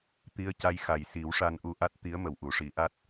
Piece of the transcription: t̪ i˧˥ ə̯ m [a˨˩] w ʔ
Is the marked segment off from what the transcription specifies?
yes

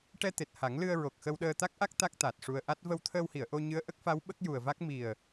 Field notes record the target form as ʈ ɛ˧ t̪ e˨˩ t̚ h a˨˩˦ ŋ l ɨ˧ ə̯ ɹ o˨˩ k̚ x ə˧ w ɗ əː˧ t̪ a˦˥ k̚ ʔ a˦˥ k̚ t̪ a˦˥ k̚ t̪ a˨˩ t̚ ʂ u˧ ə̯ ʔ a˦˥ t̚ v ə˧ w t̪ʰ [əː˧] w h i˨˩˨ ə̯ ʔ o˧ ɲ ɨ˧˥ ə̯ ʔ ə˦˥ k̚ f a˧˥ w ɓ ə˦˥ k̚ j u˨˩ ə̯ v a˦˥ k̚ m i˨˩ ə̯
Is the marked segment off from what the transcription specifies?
no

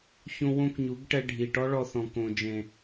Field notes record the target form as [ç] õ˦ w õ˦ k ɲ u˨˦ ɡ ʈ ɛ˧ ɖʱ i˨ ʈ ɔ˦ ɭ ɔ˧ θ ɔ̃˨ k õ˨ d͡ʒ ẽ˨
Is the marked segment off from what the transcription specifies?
no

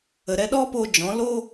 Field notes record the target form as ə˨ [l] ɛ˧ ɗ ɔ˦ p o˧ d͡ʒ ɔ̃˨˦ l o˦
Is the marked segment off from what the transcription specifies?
yes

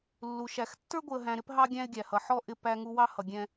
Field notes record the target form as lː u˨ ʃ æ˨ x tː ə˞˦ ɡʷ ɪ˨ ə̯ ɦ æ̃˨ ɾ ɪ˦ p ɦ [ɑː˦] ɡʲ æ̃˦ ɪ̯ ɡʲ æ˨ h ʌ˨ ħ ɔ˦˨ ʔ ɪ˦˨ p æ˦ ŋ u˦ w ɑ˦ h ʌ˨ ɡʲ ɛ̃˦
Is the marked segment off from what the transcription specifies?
yes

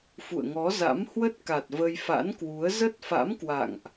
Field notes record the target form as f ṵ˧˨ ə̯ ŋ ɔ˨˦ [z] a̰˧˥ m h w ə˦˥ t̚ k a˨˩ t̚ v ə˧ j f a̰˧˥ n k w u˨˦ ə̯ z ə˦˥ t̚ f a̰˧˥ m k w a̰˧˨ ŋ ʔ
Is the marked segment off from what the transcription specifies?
no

